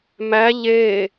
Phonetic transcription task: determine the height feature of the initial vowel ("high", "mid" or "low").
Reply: low